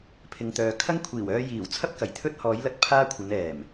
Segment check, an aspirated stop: present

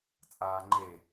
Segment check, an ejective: present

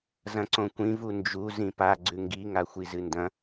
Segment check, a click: present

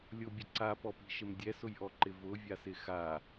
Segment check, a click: present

